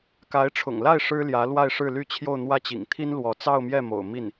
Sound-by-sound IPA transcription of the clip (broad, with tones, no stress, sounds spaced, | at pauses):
k a˧˥ ɪ̯ ʈ͡ʂʰ ʊ̰˨˩ ŋ l a˥˩ ɪ̯ ʂ ɻ̩˥ l j ä˧˥ l w a˥˧ ɪ̯ ʂ ɻ̩˥˧ l y˥˧ t͡ɕʰ j o˥˧ ʊ̯ n̪ w ä˥˩ t͡ɕ ḭ˨˩ ŋ t̪ʰ i˥ n l w ɔ˧˥ t͡s ɑ˥˧ ʊ̯ m j ɛ˥˩ m o̰˨˩ ʊ̯ m i˥˩ n